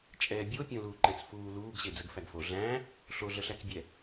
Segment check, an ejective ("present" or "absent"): present